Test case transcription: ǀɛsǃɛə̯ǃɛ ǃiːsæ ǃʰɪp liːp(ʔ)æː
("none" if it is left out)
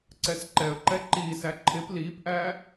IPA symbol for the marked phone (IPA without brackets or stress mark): ʔ